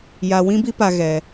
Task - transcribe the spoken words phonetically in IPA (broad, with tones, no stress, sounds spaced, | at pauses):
j a˧ w ĩ˦ b i˦ p a˧ ɣ ɛ˧